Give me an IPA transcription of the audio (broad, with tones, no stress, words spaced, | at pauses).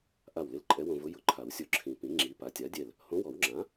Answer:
ʔa˧˩wlɪ˧l ǃʼɛ˧˥wõ˧vʊ˧˥ jʊ˨˩˦ǃʰa˨˩˦wsʲo˧˩ǁʰĩ˨˩˦ pĩ˩˥ ŋ͡ǁi˩˥ pa˩˥tʲa˩˥dʲɛ˧˩l | hõ˧˥wɔ˨˩˦wŋ͡ǁã˩˥